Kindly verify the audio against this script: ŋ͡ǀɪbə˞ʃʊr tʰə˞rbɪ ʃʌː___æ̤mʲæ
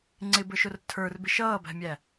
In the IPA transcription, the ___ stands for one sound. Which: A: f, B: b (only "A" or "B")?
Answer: B